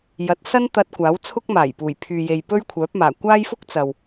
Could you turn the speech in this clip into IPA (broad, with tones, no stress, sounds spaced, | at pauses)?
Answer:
j ɐ˨˥ t̚ s ɐ˥ n t̪ ɐ˧ t̚ kʷ aː˨˥ w t͡sʰ ʊ˥ k̚ m aː˨˩ j p uː˨˩ j pʰ yː˨ j e˨ j p ɵ˥ ɥ kʷʰ œː˨˥ p̚ m aː˨˩ kʷ aː˥ j f ʊ˥ k̚ t͡s ɐ˨ w